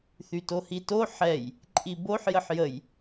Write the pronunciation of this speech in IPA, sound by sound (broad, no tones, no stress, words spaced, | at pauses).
θytohito ħɛj | ǃʼiboħ jəħjəj